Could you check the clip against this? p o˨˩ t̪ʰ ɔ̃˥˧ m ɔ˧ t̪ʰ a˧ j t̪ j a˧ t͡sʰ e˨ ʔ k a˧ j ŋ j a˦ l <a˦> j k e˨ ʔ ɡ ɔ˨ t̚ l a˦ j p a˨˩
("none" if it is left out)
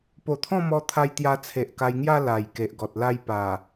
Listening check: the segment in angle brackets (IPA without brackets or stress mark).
a˨˩